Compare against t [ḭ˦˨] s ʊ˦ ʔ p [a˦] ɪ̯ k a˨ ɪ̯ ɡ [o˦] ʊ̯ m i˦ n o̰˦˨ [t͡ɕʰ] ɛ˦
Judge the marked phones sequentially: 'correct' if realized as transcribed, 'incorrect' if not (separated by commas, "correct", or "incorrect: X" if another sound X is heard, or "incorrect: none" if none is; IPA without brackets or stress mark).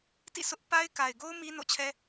correct, correct, correct, correct